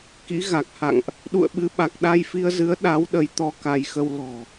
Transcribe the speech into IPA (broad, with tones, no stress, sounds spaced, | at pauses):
k ḭ˧˥ ɣ a˨˩ k̚ h a̰˧˨ ŋ ʔ | ɗ ṵ˧˨ ə̯ ɓ ɨ˨˦ ɓ a˨˩ k̚ ɗ a˧ j f i˧ ə̯ z ɨ˨˦ ə̯ ɗ a˨˦ w ɗ ə˨˦ j t̪ ɔ˧ k a˧ j x ə˧ w l ɔ̤˨˩